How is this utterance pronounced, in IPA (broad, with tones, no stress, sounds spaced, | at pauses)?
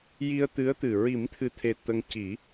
j i˧ ə̯ t̪ ɨ˧˥ ə̯ t̪ ɨ˨˩ ɹ i˨˩˦ m t̪ʰ ɨ˨˩ t̪ʰ e˨˩ t̪ ə˧ ŋ c i˨˩˦